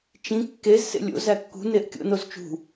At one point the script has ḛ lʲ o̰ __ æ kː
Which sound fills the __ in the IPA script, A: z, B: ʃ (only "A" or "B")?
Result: A